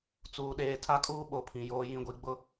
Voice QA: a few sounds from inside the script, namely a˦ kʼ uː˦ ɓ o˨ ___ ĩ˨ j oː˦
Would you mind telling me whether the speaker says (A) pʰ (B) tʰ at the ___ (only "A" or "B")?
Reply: A